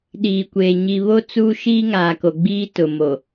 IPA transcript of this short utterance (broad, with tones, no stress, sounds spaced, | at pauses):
ɗ iː˨ kʷ eː˨ ɲ i˨ β o˦ t͡s uː˦ ʃ iː˦ ŋ aː˨ k o˨ ɡ͡b iː˦ t ʊ˨ m o˨